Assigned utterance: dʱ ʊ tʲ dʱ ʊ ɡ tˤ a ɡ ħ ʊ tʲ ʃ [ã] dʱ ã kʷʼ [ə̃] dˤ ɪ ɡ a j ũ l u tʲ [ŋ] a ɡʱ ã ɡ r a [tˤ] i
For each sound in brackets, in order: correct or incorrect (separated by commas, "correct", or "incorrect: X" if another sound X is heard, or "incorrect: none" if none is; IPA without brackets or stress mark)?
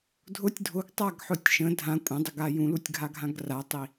incorrect: ə̃, incorrect: ɐ̃, incorrect: ɡʱ, correct